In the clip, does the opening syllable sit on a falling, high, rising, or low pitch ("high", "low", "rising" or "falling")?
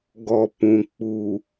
low